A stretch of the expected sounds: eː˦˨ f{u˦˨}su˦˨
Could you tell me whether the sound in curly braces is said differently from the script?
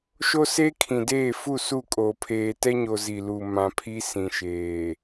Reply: no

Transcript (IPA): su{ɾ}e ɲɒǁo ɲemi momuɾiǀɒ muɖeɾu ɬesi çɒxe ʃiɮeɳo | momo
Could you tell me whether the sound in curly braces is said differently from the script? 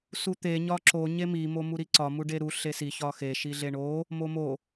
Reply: yes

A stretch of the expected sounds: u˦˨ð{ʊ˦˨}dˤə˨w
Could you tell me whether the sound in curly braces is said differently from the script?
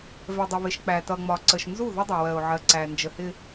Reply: yes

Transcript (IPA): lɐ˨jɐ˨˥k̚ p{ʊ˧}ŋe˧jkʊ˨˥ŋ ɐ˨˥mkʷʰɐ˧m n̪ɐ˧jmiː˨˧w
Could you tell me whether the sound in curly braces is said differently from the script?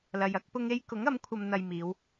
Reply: no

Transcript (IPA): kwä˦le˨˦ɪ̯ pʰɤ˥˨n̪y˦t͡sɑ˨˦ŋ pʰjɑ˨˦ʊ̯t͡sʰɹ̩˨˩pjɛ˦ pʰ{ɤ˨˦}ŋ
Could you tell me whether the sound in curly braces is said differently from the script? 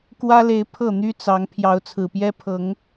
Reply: no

